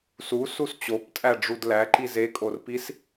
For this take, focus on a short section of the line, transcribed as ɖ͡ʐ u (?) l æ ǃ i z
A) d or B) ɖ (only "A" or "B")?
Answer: A